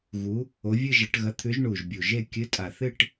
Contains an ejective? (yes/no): yes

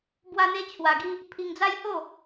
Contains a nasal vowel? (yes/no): no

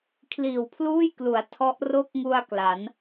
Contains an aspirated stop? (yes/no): yes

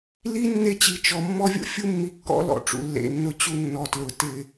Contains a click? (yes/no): no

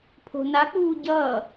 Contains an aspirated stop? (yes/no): yes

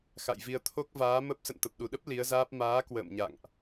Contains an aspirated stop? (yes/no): yes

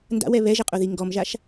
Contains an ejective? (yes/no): yes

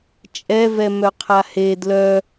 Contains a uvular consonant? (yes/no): yes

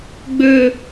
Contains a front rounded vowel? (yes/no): yes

